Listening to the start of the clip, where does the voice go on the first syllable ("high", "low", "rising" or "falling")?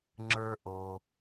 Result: low